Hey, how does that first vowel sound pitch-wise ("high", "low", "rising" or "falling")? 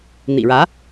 low